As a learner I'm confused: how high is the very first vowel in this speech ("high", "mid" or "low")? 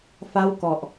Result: low